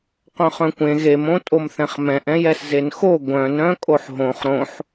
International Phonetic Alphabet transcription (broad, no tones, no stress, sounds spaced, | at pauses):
q œ̃ χ œ̃ kʷ ẽ ɣ e m õ tʼ o m θ ɛ̃ χ m ɛ̃ ʔ ɛ̃ j ɛ s z e n x o ɡʷ œ̃ n ɾ œ̃ kʼ o ħ ɦ õ χ ɾ õ ħ